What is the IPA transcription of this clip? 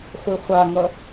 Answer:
χʷiχʷaŋʌ

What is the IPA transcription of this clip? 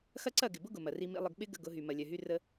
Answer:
xɐ˦ǀɐ˦˨ɡɪ˨bʊ˦ ɡʊ˨mɐ˨ri˦mḭ˦ lˠə˨ɡɓɪ˦ ɡə̰˦ ɡʊ˨˦ɦy˨ mɐ˨lʲœ˨ɦy˦ rə˦

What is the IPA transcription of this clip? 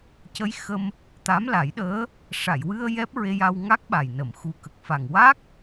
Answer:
cə˧˥j xə˧m | t̪a˧˥mla˨˩˦jɗəː˧˥ | ʂa˨˩˨jwɨ˧ə̯ jɛ˦˥p̚ɹe˧ja˧w ŋa˦˥k̚ɓa˨˩jnə˨˩˨m xu˨˩kə˨˩k̚ fa˨˩ŋ wa˦˥k̚

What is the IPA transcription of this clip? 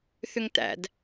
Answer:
θʏŋtæ̰d

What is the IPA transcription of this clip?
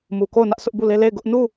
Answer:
mu˨ko˦˨ʊ̯ nä˦ʔsʊ˦ʔbu˦˨le˦ le˦˨ɪ̯ɡʊ˦ʔ nu˦˨

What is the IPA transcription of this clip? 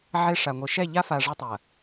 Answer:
ʕe˦ʂa˨ŋʷi˨ ʃɛ˦˨ʎa˦fa˨ ʐɐ˦tˤɐ˨

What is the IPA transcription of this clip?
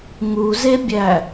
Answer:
ŋuzebʲæ

